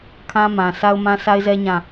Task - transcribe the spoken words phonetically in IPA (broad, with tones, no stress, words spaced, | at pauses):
kʰã˦mã˨sa˦ʊ̯ mã˦sa˦ɪ̯zɛ˦ ɲã˦˨